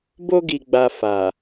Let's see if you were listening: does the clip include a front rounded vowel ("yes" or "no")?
no